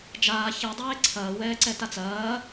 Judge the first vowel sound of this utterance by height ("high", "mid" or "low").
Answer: low